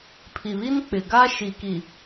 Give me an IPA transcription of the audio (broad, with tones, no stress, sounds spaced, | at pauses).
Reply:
pʰ i˨ β i˦ n k͡p ɪ˨ ɡ a˦ ʃ i˨ k i˨